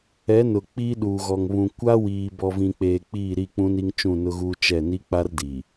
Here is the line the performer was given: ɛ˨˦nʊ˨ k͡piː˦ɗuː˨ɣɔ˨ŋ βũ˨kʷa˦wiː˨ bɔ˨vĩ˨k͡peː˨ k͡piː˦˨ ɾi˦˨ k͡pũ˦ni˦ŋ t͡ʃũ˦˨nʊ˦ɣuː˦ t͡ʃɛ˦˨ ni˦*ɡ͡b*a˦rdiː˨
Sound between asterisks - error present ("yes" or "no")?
yes